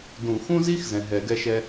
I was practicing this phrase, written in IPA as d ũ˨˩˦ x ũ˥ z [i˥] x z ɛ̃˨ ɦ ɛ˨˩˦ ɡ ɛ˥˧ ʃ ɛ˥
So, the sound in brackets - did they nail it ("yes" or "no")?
yes